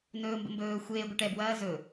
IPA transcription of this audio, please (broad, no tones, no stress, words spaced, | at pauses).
nɵːmbə̰mbɵː xʷeː ɡʷɛʈɛbwɐː zɵ